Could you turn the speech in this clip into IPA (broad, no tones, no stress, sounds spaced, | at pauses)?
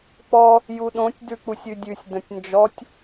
k͡p ɔ | j u ɗ õ tʲ d ʉ k͡p u sʲ ʉ dʲ ʉ sʲ d ə̃ tʲ n d͡ʒ ɔ tʲ